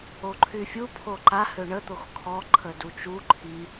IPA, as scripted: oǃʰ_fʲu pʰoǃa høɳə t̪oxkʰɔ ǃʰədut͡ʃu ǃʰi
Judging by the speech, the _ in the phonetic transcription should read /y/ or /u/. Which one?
y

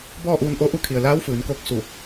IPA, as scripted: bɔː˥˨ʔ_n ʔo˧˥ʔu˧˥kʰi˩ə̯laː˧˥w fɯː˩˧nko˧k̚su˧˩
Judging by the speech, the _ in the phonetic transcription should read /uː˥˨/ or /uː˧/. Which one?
uː˧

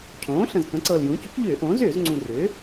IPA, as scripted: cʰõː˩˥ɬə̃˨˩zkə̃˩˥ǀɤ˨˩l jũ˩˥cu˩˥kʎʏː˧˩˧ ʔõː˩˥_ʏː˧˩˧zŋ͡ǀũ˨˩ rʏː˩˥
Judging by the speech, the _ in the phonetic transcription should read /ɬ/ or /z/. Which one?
z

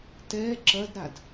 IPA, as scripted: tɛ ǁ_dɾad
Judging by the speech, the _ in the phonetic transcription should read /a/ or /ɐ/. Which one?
ɐ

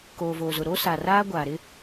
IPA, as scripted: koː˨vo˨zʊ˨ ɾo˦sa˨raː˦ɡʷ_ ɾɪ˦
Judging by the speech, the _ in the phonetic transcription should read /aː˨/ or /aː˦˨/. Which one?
aː˨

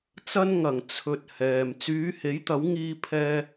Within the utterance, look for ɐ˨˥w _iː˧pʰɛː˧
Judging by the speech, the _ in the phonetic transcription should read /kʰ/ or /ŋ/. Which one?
ŋ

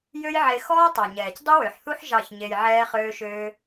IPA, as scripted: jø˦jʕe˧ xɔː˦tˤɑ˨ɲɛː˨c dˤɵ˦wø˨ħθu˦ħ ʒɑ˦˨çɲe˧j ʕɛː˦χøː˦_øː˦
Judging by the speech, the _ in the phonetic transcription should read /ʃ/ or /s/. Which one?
ʃ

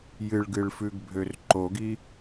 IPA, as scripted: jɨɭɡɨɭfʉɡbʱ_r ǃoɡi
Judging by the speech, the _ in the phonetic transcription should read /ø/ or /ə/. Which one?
ø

